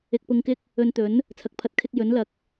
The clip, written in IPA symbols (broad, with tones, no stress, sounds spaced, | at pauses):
ɪ˧ k̚ p ʊ˧ ŋ k ɪ˥ k̚ | ɵ˧ n t̪ ɵ˨˥ n | t͡sʰ ɐ˨˥ k̚ pʰ ɐ˨˥ t̚ kʰ ɪ˥ k̚ j ɵ˨˥ n l ɐ˨˥ k̚